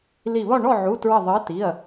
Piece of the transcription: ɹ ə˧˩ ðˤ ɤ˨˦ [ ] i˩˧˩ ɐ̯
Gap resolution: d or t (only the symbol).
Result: t